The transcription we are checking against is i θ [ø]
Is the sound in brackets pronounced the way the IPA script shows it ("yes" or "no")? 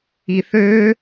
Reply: yes